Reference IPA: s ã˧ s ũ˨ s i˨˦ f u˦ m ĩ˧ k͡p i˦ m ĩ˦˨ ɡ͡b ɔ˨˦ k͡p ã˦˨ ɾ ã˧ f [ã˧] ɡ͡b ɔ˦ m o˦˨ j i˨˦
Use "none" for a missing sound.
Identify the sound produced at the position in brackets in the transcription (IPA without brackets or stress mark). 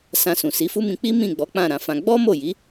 ã˧